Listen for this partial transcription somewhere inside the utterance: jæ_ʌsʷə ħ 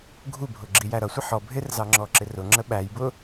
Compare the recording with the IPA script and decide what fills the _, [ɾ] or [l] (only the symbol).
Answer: ɾ